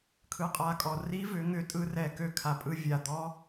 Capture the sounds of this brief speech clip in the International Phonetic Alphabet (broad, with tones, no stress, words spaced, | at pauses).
kʰɯ˨˦qʼa˨˦kʼɔ˨˩ ri˦˥vʏ˨˦ŋʏ˨˦ tʼɯ˦˥rɛ˨˩ kø˥˩kʰa˨˩pʼɯ˦˥ vʲa˨˩d̪ɔ˦˥